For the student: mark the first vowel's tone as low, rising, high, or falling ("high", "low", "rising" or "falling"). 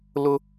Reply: high